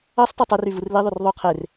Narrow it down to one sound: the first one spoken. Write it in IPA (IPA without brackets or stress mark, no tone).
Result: ɑ